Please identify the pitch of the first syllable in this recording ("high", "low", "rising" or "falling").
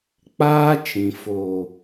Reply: high